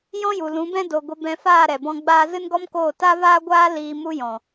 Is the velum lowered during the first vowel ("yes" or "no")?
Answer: yes